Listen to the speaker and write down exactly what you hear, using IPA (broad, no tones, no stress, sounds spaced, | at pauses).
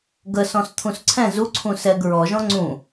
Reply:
ɡ ə s ɔ̃ s t̪ʰ ũ s ǀʰ ɛ̃ z u ǀʰ ũ s ɛ ɡ ɹ ɔ ʒ ɔ̃ ŋ͡ǀ ũ